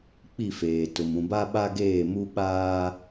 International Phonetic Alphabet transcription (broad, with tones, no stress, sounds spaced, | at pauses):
k͡p i˦˨ f eː˨ t ʊ˨ m ũ˨ b a˦ ɓ a˦ ɡ eː˦˨ m u˦ ɓ aː˦